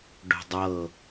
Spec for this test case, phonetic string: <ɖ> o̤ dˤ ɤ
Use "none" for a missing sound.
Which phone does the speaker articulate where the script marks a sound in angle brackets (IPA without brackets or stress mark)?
ɖ